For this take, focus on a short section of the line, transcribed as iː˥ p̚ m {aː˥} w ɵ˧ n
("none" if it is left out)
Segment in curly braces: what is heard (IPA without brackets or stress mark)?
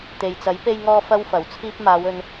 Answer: aː˨˧